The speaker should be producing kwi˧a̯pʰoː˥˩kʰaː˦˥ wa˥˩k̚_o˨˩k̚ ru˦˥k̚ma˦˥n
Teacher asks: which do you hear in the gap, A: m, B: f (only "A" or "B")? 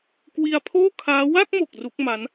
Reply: A